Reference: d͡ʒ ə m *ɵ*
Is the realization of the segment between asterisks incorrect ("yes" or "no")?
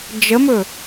no